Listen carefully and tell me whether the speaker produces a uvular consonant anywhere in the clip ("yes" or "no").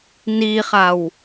yes